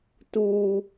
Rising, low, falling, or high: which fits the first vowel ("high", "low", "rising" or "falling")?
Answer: high